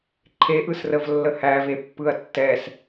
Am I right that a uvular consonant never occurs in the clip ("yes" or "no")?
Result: yes